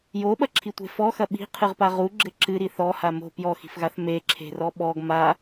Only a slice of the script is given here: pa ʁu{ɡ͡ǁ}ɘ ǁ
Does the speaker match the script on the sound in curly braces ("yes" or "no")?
yes